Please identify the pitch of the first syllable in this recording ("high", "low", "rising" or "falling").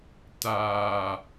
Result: low